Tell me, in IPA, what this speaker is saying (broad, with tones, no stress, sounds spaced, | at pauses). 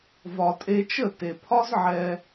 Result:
v ɒ˨ tʼ e˧ t͡ʃ ə˦˨ t e˨ pʰ ɒ˦ z ʕ ɛ˧